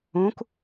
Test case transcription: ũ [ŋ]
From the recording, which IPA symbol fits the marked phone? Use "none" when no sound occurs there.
k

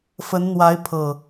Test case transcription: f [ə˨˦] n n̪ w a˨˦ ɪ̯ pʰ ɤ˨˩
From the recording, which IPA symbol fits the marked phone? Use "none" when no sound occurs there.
ə˨˦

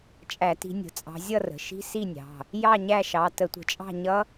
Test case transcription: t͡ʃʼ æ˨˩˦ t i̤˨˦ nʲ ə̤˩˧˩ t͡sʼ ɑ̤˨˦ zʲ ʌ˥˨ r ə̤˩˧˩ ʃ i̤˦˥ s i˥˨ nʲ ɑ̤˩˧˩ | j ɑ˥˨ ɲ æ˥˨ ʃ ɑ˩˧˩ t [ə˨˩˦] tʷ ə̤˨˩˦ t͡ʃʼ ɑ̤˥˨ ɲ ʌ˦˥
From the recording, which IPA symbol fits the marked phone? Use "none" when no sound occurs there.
ə˨˩˦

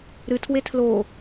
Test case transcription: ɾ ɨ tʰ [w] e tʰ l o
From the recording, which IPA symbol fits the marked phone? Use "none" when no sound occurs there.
w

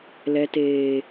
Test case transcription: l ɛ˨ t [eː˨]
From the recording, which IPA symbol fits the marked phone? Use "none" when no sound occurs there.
eː˨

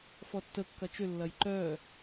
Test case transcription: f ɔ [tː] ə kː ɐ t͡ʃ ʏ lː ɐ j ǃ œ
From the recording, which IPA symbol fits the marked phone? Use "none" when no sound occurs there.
tː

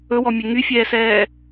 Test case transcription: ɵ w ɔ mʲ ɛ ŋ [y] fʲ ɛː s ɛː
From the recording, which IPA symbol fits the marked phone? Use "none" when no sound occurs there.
y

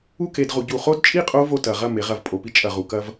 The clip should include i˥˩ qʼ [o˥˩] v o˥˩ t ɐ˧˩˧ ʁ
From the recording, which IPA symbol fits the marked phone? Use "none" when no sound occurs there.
o˦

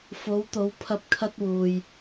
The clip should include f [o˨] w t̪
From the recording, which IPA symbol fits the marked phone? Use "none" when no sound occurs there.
o˨˧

